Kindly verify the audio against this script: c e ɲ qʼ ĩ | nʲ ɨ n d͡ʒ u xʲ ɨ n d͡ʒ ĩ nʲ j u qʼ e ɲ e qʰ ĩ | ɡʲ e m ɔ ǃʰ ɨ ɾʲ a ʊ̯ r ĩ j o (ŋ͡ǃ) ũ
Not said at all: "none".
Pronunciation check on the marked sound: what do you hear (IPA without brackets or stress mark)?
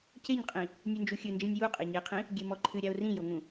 ŋ